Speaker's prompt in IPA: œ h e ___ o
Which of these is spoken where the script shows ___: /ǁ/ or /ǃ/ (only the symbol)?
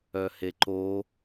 ǃ